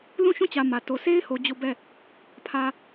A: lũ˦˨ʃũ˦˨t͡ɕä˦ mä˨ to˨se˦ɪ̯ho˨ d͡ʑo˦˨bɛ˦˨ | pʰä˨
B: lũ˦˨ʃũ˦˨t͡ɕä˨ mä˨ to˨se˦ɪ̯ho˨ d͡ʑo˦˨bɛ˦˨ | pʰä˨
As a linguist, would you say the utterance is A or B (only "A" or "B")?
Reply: B